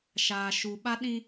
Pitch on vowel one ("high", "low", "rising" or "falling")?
low